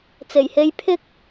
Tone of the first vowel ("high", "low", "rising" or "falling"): low